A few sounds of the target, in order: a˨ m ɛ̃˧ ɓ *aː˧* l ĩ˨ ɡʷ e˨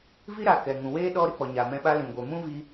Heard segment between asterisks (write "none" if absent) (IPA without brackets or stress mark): a˧